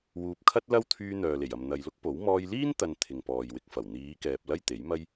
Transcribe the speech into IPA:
w uː˨ p̚ kʰ ɐ˥ t̚ l ɐ˥ w t̪ʰ yː˧ n̪ œː˨ l e˨˩ j ɐ˨ m n̪ ɐ˨ j l ʊ˥ k̚ p o˨˥ w m ɔː˧ j l iː˥ n t̪ ɐ˧ n t̪ʰ ɪ˨ ŋ p ɔː˨ j w ɪ˧ k̚ f ɐ˨˩ w n̪ iː˨˧ k ɛː˨ p̚ l ɐ˥ j t̪ e˨˥ j m ɐ˥ j

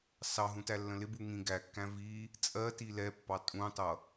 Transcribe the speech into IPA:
s ɑ ɦ ũ t æ lː ə̃ l ɪ b u ŋ ĩ ɡ æ kː æ̃ v i | t͡sʼ ɜ t i l ɛ pː ɑ tʼ ũ tˤ ʌ

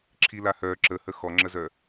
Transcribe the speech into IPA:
ǁʰ i l a h œ ǁ ə h ə x ɔ ŋ͡ǁ ə z œ

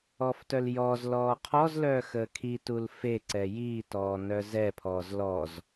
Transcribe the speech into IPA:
ɔː f t œ l j ɔː z l ɔː qʰ ɔ z l œː x əː kʰ i t u l f e ǀ ɛ j iː t ɔː n œ z ɛ pʰ ɔː z l ɔ z

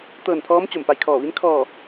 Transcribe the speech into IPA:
t̪ ɤː˧˩ n pʰ ɔː˧˥ m t͡ɕ o˧˩ m p a˧˩ j kʰ ɔː˧˩ ʋ i˧˥ n kʰ ɔː˧˩

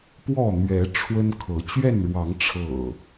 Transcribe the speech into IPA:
p w ɔ˥˨ n̪ ɥ ɛ˨˦ ʈ͡ʂʰ w ə˦ n kʰ ɤ˨˦ t͡ɕ ɥ ɛ˥˨ n ɻ w ɑ˨˦ ŋ ʈ͡ʂʰ ɤ̰˨˩

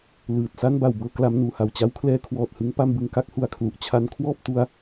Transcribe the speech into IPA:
l ɯː˨˩ t̚ s a˥˩ n b a˨˩ w b ɤː˧ k l a˦˥ m n uː˩˦ h a˨˩ w t͡ɕ a˦˥ w kʰ l ɛː˦˥ kʰ w ɔː˨˩ t̚ h ɯ˦˥ ŋ p a˥˩ m b ɯ˧ ŋ k a˥˩ k̚ h u˩˦ a̯ kʰ l u˨˩ ʔ t͡ɕʰ a˦˥ n kʰ w ɔː˥˩ p̚ t u˦˥ a̯

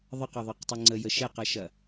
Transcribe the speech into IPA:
ðˤ ə q ɐ ðˤ ɯ q tˤ ɯ ŋ͡ǀ ə j ə ʃ ɛ q ɐ ʃ ɐ

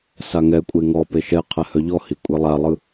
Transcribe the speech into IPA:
s a ŋ ɛ kʷʼ e ŋ ɔ p e ʃ ɛ qʰ ɛ h œ ʎ ɔ h i kʷʼ e lˠ a lˠ ɯ

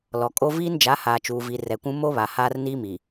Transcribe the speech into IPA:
l ɔ˨ kʼ o˦ v iː˦ n d͡ʒ a˨˦ h aː˨ t͡ʃ uː˨ v i˨ r ɛ˨ kʷ ũ˦ m o˦ β a˨ h aː˦ r n iː˦ m i˨

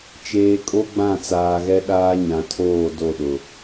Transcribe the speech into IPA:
t͡ʃ eː˨ kʼ o˦ ɡ͡b ã˦˨ t͡s aː˨ ɣ ɛ˦ ɗ aː˦ ɲ ã˨ tʰ oː˦˨ d o˦˨ ɗ ʊ˨

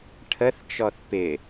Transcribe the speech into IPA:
ʈʰ ə θ t͡ʃ ɔ θ p ɪ

